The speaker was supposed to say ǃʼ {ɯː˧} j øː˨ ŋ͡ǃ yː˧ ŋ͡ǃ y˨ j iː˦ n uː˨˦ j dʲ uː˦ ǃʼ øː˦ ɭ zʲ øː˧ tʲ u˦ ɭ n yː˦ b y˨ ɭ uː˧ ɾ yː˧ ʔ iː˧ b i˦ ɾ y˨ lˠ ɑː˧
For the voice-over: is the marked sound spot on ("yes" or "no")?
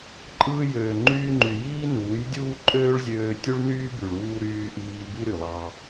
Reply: yes